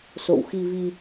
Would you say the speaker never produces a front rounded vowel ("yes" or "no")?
yes